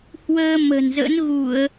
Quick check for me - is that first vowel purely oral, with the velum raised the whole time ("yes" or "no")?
yes